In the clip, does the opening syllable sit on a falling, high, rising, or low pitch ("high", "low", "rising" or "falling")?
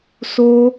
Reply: high